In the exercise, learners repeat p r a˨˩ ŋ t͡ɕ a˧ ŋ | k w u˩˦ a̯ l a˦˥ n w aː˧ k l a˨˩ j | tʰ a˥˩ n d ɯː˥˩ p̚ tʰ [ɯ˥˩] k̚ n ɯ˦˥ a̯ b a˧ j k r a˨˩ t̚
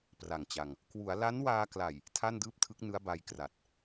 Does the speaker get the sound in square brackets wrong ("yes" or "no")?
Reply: yes